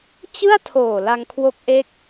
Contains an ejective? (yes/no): no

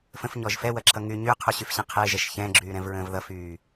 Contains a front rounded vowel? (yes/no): yes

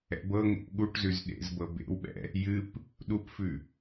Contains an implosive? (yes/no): yes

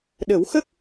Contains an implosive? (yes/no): yes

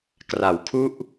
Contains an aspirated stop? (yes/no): yes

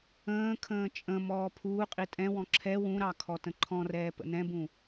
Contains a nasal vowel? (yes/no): yes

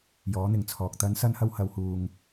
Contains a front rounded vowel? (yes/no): no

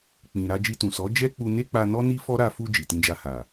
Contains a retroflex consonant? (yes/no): no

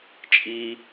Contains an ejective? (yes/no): yes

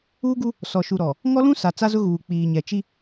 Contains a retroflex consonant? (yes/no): no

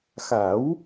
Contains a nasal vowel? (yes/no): no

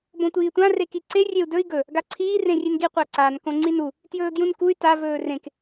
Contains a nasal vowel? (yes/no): yes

